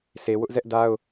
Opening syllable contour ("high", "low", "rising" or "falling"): low